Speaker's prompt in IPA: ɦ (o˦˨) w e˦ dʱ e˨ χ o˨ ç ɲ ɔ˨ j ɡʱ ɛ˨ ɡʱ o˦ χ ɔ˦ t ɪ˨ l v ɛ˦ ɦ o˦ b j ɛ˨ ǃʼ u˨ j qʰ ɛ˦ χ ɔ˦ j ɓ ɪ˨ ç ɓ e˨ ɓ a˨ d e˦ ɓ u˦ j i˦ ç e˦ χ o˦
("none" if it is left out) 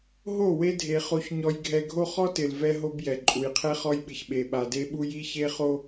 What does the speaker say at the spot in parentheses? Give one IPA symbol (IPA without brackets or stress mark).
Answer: o˦˨